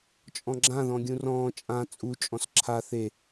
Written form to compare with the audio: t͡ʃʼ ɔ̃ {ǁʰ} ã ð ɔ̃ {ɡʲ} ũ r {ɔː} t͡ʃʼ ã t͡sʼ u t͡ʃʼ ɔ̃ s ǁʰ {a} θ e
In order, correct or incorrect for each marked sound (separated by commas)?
incorrect, correct, incorrect, correct